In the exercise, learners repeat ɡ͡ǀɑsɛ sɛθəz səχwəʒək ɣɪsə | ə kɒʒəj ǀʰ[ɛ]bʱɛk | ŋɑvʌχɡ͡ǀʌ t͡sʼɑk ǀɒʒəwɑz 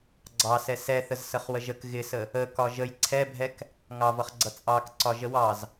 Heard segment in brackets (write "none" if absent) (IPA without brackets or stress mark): ɛ